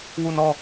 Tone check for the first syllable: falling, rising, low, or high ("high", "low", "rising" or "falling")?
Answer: falling